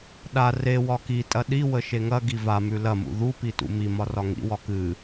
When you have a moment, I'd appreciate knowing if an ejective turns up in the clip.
yes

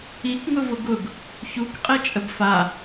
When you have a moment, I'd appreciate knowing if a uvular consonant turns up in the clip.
yes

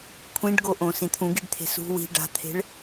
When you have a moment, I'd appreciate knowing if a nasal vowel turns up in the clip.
yes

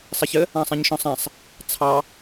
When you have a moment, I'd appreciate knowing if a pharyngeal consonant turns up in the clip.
no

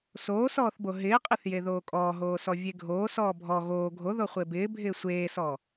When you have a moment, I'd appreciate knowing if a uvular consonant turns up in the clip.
yes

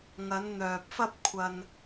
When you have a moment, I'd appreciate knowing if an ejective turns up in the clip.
no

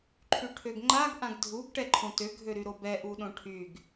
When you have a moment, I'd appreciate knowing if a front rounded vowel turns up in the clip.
yes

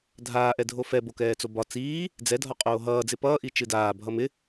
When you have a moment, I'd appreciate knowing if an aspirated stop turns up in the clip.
no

